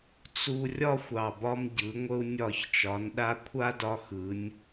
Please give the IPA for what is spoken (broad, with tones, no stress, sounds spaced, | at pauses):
t͡s u˧ rʲ ɒ˥ xʷ ɑ˧˩ b ɒ˥ m ɟ ɯ˩˧ ŋʷ ə˧ u̯ nʲ ɒ˧˩ ç t͡ʃ ɒ˩˧ n ɗ a˧ kʷʰ a˥ d ɒ˧ x ɯ˩˧ nʲ